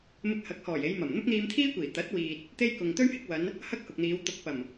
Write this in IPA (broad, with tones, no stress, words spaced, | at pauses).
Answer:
mɪ˧k̚hɐ˨˥k̚hɔː˨˩j e˨˧jmɐ˨˩m n̪ʊ˥k̚n̪iː˧mt̪ʰiː˥kʷiː˨˩ t̪ɐ˨˥t̚wiː˨t̚ | t̪e˥jkʊ˨ŋ t̪ɵ˥ɥhɪ˧k̚wɐ˨˧n | hɐ˥k̚hʊ˨k̚n̪iː˨˧w t̪ʊ˨k̚pɐ˨˩m